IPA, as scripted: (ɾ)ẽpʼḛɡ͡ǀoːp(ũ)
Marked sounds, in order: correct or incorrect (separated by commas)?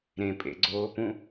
correct, correct